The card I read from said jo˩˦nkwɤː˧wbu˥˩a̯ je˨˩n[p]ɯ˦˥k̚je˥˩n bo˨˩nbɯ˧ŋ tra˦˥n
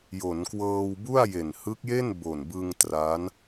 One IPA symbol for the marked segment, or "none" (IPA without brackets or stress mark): h